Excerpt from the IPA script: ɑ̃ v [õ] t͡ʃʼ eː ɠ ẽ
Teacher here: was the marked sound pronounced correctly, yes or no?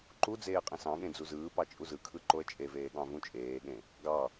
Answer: no